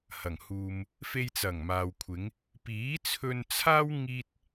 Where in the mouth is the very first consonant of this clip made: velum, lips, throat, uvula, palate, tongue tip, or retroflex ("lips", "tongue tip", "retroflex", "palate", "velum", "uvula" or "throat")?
throat